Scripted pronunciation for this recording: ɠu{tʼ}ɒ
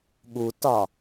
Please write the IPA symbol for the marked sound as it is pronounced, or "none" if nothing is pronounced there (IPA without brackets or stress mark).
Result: t